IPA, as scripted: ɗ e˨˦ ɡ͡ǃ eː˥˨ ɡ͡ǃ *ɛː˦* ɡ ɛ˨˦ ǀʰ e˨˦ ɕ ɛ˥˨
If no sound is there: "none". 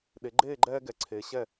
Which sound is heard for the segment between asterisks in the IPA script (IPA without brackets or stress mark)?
ɛː˦